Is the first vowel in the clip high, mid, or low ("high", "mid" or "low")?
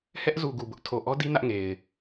mid